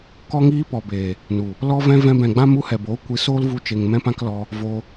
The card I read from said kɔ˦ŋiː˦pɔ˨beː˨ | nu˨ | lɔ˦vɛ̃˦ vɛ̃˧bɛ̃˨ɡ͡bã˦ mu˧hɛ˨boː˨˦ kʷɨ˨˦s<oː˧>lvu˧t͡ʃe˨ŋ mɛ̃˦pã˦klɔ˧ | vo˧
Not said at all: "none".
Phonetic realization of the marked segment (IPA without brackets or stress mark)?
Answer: oː˦